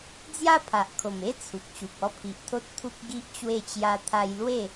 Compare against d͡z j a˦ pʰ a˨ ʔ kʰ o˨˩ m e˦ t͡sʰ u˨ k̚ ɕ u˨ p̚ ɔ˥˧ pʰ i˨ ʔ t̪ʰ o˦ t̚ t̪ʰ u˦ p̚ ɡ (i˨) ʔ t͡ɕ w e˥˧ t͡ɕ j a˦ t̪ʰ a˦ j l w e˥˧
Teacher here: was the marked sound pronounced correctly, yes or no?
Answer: no